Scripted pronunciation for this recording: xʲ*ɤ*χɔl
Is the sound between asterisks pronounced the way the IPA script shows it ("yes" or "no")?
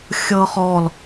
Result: yes